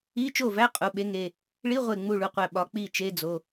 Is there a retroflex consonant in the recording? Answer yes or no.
yes